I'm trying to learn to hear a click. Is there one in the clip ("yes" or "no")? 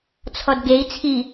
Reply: no